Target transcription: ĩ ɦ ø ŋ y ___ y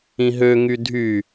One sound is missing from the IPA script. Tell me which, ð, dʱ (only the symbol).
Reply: dʱ